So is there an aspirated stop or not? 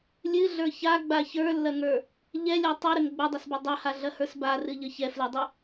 no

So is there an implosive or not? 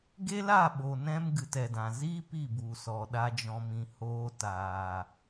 yes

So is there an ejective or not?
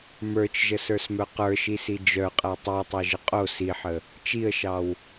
yes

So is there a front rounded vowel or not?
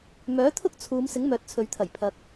yes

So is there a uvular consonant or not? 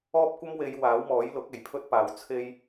no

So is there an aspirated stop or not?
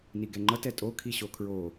yes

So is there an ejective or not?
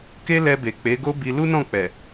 no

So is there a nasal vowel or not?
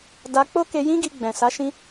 yes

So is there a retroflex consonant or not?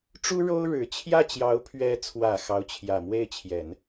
yes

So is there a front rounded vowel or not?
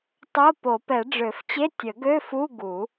yes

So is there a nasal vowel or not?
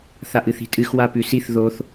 no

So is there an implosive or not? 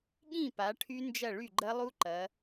yes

